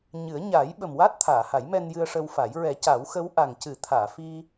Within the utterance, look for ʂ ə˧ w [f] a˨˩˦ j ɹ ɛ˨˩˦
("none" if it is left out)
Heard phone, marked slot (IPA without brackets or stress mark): f